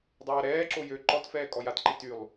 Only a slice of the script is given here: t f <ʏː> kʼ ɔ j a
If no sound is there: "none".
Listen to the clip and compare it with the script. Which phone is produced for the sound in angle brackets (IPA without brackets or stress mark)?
ɛː